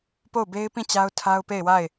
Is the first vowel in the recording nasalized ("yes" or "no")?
no